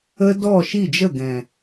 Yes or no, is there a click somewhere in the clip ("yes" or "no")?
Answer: no